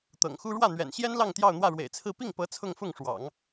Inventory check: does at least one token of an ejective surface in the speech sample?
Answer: no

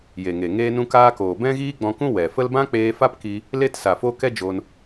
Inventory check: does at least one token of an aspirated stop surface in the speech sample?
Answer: no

